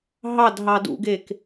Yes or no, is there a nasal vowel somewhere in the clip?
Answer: no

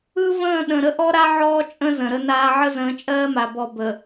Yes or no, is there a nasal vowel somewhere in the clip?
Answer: yes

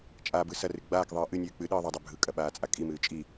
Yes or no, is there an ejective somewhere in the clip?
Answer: yes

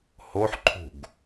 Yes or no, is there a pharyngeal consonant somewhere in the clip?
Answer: yes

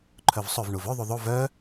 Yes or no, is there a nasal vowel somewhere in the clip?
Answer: no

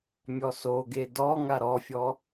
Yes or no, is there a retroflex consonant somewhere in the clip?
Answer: no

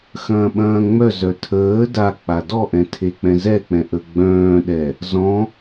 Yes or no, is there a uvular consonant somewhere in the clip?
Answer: no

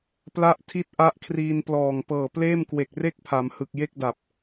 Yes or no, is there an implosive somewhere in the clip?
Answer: no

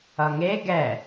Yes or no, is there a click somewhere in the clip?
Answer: no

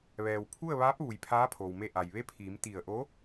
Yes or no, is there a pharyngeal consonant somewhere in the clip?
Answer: no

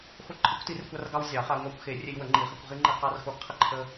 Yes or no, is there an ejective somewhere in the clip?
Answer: no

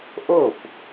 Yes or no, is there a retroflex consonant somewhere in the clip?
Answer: no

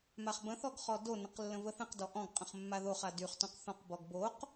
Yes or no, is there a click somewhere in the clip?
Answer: no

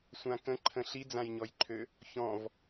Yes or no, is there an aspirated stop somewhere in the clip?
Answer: yes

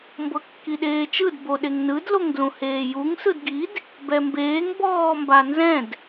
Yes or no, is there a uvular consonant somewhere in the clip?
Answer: no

